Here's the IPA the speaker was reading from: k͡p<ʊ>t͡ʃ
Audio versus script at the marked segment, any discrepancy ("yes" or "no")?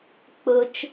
no